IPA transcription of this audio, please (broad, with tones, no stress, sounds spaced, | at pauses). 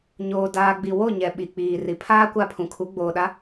ɲ oː˨ d aː˨ ɡ͡b i˨ w o˦˨ ɲ ɛ˨ ɓ i˨ k͡p iː˨ r i˨ pʰ aː˦ kʷ a˦˨ pʰ ũ˨ kʰ u˨˦ ɡ͡b oː˨ ɗ a˨˦